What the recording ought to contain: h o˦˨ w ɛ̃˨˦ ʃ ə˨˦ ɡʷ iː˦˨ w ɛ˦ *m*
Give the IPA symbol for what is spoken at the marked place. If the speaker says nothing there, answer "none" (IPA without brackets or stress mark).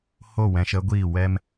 m